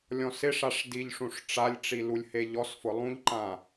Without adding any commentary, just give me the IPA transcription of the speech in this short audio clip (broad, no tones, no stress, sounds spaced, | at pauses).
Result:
lʲ ɔ̃ s ɪ ʂ a ʂ d i ʎ ʂ ũ ʂ ʈ͡ʂ a lʲ ʈ͡ʂ i l u lʲ h e ʎ ɔ s f ʊ lˠ ũ ʎ ǃ ã